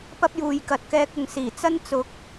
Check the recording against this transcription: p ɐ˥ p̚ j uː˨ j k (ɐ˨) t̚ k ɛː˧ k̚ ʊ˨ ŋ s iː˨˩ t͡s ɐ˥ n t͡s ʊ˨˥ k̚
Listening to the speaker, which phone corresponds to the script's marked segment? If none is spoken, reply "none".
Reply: ɐ˨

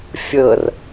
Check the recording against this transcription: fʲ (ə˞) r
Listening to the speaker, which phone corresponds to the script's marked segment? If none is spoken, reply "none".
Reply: ɤ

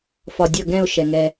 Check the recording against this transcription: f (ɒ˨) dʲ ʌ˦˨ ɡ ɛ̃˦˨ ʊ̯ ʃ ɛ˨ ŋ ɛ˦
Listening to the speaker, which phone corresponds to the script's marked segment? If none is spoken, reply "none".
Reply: ɒ˨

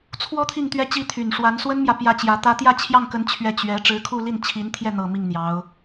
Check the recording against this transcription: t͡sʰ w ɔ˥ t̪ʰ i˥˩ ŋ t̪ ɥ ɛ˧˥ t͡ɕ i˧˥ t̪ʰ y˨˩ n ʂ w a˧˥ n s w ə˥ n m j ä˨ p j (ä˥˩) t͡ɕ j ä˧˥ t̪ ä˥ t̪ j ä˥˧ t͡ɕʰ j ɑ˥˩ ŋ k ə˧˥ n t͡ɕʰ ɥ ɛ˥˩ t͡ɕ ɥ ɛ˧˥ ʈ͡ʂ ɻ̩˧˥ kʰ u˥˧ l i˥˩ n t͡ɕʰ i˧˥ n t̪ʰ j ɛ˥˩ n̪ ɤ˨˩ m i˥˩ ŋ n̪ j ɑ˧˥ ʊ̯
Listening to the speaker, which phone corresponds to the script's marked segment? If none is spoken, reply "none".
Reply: ä˥˩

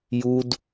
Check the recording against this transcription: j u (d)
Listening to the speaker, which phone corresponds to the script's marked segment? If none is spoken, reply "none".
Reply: d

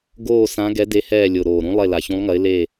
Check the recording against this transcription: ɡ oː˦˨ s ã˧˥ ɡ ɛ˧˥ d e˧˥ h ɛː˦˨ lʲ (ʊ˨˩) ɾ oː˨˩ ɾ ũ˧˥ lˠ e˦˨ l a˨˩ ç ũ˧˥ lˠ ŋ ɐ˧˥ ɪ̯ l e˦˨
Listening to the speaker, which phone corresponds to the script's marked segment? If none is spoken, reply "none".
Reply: ʊ˨˩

